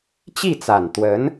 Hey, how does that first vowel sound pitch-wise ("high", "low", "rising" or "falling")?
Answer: falling